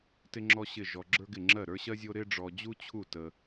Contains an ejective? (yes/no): no